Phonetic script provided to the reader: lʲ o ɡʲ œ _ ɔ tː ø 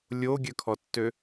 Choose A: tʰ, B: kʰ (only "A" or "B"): B